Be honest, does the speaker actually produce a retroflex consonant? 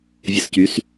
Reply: no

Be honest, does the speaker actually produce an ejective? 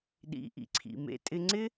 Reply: yes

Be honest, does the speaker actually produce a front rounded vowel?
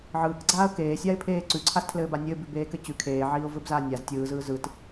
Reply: no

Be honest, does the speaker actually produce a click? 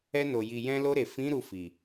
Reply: no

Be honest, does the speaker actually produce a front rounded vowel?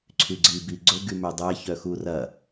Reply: yes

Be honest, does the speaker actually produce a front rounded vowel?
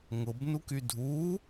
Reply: yes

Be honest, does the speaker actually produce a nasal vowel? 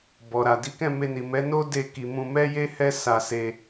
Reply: yes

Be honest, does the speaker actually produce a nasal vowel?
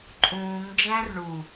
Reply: yes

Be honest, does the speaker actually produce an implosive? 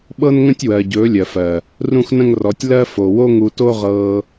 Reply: yes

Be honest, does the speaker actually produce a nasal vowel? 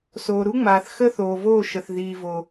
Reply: no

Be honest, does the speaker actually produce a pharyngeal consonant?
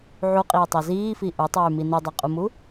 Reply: yes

